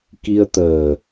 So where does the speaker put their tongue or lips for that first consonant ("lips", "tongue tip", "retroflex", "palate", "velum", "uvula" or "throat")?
velum